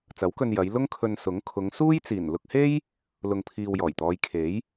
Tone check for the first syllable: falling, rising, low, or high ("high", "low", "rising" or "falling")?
rising